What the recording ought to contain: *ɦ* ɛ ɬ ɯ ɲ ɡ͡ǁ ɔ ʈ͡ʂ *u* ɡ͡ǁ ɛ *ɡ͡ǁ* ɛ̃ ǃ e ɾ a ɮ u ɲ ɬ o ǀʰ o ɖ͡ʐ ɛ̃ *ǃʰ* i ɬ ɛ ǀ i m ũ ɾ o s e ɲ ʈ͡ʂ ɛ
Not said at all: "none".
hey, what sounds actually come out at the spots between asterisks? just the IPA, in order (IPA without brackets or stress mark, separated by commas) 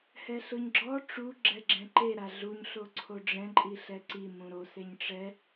h, u, ɡ͡ǁ, ǃʼ